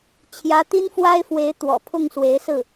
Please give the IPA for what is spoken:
t͡ɕʰ j ä˧˥ t̪ i˥ n f w a˥ ɪ̯ f w e˧˥ ɪ̯ t̪ w ɔ̰˨˩ pʰ ʊ˥˩ ŋ s w e˧˥ ɪ̯ s ɹ̩˥˩

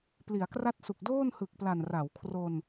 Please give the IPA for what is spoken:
p l i˩˦ a̯ k r a˥˩ t̚ s u˨˩ k̚ d oː˥˩ n h ɯ˨˩ k̚ p l a˨˩ n r a˩˦ w kʰ r o˧ n

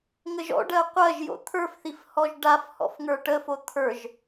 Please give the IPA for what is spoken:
ŋ ə ʒ ɔ̰ ɖ ɜ qʷ ɜ ʒ j o̰ t̪ʰ ə˞ f θ i f h ɔ ʒ ɖ a f h ɔ̰ f ŋ ə˞ ʈ ə f o t̪ʰ ə˞ ʒ

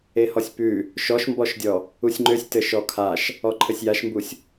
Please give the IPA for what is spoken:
e h ɔ sʲ p ʉ | ʃ ɔ ʃ m b ɔ ʃ dʲ ɔ | u sʲ ŋ͡ǃ ø sʲ t ɘ ʃ ɔ kʰ a ʃ | ɔ ǃʰ ɘ sʲ j a ʃ m b u sʲ

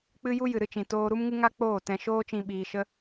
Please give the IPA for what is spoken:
k͡p ɨ˦ j u˦ j ɨ˨ ɾ ɨ˦ t͡ʃ ĩ˨ t oː˧ ɾ u˦ m ŋ ɨ˦ ŋ a˦ k͡p oː˦˨ t ɛ̃˧ ʃ oː˦ t͡ʃ ĩ˧ ɓ iː˧ ʃ ə˦

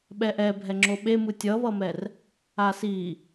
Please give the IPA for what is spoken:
ɓ ɛ ʔ ɛ bʱ ɛ ŋ͡ǁ o ɓ e m ɯ tʲ ʌ β ʌ m ɛ r | a s i

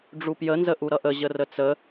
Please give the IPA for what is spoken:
ɖ͡ʐ u p j ə n z ə ʔ u ɾ ʌ ʔ ə ʑ ə r ə t͡s ə

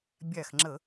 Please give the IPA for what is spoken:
bʲ æ˧˩ x ŋ͡ǁ ə˧˩˧

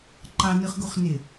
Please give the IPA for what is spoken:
ǃ ɑ n ɯ χ ɡ u χ n e

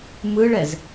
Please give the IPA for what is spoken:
m ɯ ɭ ɛ z

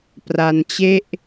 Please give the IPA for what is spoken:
p r a˧ n t͡ɕ e˥˩ ʔ

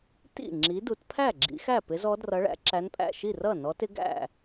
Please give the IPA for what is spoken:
t ḭ˥˩ ŋ͡ǁ i˨˦ d u˨˦ t pʰ æ˥˩ ɡ͡ǁ ḭ˨˦ x æ˥˩ p ɪ˨˦ z ɔ˨˦ d r ʌ˨˦ ɭ æ̰˨˦ ǁ æ˨˦ n pʼ æ̰˥˩ ʃ i˥˩ r ʌ˥˩ n ɔ˨˦ t ɪ˨˦ ɡ æ̰˥˩

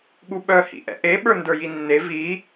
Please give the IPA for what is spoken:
ɠ u ɓ œ h ḭ ʔ ɛ̰ ʔ e ɓ ə˞ n d ə˞ j i nː e v i

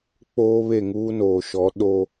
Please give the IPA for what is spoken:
k͡p oː˦ β e˦˨ ŋ uː˦ n oː˨ ʃ ɔ˨˦ ɗ o˦

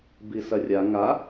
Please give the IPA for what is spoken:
b i s ɐ rʲ a ŋ a

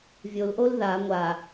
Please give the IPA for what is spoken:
vʲ o l ʔ o l ð a ŋʷ a

